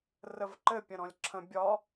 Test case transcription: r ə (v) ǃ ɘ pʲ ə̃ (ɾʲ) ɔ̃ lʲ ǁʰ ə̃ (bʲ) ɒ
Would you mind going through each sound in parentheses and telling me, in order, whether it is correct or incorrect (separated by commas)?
correct, incorrect, correct